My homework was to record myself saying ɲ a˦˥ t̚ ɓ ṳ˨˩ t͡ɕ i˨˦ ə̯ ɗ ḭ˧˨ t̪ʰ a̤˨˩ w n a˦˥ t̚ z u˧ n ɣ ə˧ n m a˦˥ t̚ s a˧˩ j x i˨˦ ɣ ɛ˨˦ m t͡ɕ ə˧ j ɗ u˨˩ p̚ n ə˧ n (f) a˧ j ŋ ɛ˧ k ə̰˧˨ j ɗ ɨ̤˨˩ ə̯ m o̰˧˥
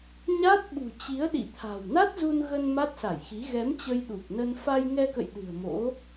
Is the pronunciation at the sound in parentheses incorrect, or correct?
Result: correct